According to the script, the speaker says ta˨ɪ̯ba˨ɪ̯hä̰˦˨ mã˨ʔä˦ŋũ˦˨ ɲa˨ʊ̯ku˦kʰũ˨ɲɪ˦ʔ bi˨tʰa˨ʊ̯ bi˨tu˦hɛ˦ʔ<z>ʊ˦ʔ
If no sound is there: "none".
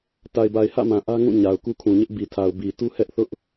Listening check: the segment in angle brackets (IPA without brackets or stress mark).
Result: θ